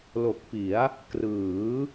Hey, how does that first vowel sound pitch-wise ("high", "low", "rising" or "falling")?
low